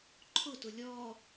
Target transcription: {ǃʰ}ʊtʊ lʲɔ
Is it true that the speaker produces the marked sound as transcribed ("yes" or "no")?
yes